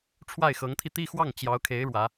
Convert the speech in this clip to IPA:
ʈ͡ʂʰwa˥˩ɪ̯xɤ˧˥ŋt̪ʰi˧ t̪i˥˧xwɑ˥˩ŋ t͡ɕjɑ˧˥ʊ̯kʰe˧˥ɪ̯ ɻwä˧˥

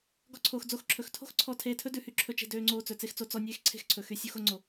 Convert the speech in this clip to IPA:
ɡɔ˦ǀʰoː˧x d͡zo˦xǁʰɵ˧x tʰo̤˦xǀʰɔ˧ tʰeː˧tʰɵ˦dʉ˨hy˦ ǁʰɵ˦t͡ʃe̤˦ døː˦ŋ͡ǀoː˦t͡sɵ˨ t͡se˦xt͡so˨˦ t͡sɔ˦ nʲeː˦xǀʰe̤˦xǀʰɵ˨ xy˧ sʲu˦xo˦ ŋ͡ǀo˧

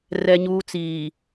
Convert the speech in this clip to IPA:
rɛ˦ɲuː˦t͡siː˨

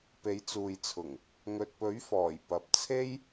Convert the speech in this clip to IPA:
pe˨˥jt͡suː˨jt͡sʰʊ˨˩ŋ | ŋɵ˨t̚pɵ˨˥ɥfɔː˨˩j pɐ˨p̚t͡sʰe˥j

